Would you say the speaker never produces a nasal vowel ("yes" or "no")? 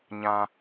no